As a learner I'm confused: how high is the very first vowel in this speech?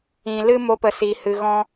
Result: high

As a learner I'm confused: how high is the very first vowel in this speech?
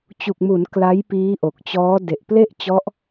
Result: high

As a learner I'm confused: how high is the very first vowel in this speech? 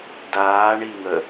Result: low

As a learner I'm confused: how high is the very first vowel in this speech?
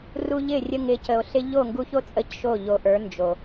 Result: high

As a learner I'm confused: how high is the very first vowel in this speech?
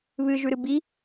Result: high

